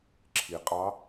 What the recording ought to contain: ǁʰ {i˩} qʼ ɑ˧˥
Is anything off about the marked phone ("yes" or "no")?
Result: no